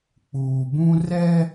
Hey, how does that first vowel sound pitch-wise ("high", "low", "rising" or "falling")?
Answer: low